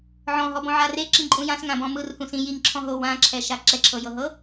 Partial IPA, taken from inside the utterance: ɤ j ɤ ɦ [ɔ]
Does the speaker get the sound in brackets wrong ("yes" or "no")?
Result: yes